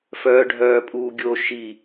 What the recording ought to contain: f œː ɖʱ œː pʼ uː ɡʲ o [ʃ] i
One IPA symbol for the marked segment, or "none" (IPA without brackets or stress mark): ʃ